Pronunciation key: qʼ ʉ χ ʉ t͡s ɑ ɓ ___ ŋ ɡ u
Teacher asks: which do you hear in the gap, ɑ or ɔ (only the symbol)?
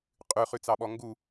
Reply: ɔ